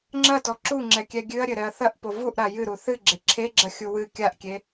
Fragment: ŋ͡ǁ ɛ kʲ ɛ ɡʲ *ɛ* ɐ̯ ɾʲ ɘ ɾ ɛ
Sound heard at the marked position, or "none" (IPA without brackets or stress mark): ɨ